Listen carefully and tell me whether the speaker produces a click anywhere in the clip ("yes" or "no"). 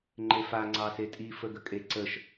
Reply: yes